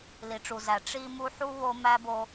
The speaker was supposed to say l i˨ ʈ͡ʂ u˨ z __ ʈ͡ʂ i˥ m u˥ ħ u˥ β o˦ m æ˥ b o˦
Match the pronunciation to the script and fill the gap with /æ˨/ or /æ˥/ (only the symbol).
æ˨